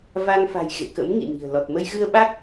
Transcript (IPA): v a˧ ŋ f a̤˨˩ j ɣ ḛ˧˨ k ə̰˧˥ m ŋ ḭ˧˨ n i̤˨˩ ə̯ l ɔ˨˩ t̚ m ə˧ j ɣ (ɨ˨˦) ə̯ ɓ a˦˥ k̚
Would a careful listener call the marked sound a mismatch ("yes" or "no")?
yes